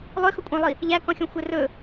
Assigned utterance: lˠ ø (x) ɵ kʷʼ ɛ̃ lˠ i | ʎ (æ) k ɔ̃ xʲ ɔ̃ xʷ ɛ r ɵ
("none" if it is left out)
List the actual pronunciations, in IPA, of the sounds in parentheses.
x, æ

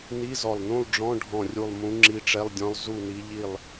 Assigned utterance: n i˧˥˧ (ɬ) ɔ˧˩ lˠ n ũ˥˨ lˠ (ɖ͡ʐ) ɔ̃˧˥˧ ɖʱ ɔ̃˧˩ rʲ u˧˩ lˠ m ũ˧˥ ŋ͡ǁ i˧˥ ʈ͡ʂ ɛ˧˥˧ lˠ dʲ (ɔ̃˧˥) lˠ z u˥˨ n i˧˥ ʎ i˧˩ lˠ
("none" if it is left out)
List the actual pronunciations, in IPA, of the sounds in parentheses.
z, ɖ͡ʐ, ɔ̃˧˥

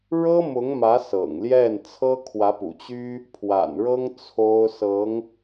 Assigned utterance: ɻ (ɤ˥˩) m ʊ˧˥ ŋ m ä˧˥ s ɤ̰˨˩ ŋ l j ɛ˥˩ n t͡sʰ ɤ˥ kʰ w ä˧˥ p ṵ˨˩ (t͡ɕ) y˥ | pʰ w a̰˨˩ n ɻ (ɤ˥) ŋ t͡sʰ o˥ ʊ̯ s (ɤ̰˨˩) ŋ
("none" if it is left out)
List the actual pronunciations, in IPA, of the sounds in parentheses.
ɤ˥, t͡ɕ, ɤ˥, ɤ˧˥

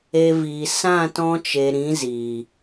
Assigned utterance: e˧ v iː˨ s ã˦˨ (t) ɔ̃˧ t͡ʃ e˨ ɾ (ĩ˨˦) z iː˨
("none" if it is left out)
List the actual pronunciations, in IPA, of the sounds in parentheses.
t, ĩ˨˦

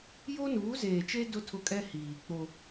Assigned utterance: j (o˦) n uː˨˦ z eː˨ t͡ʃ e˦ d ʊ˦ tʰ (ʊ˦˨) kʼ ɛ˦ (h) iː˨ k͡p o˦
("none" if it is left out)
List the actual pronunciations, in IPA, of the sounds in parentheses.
o˦, ʊ˦˨, h

